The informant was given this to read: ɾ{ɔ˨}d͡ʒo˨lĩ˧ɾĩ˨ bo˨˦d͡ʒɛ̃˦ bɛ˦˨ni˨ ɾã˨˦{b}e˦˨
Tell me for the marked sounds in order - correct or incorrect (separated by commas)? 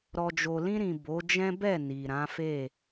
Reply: correct, incorrect